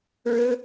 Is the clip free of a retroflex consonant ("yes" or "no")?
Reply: no